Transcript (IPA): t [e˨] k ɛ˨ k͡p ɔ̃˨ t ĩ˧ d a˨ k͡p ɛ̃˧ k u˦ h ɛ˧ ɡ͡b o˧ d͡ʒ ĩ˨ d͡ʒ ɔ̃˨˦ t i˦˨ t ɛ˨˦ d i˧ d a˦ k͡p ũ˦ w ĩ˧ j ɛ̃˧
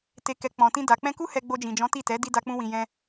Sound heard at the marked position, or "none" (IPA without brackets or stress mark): e˨